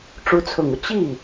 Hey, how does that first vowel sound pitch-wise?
rising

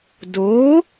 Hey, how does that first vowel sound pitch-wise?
rising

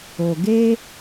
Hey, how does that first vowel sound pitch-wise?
low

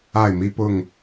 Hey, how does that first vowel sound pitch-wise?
falling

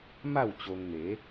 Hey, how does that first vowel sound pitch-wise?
falling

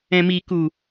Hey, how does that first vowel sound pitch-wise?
low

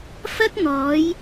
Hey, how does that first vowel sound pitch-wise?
high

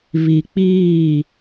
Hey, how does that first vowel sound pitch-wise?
low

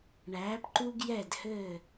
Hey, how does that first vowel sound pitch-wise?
rising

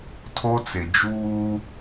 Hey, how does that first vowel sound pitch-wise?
high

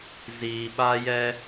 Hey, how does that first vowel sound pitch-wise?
low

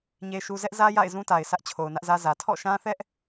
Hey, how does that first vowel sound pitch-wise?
high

